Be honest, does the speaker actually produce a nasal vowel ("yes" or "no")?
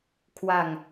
no